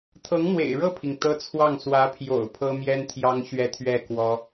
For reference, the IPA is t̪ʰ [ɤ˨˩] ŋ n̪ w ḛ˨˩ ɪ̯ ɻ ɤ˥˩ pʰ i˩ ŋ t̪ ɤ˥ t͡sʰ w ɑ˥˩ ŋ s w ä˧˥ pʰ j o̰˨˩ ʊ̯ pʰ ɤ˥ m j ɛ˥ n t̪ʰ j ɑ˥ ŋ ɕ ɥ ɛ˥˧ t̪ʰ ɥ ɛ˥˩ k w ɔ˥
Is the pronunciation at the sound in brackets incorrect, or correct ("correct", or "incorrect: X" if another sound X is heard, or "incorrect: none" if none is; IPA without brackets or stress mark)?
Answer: incorrect: ɤ˧˥